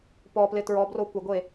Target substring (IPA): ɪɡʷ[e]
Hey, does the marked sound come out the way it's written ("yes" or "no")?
yes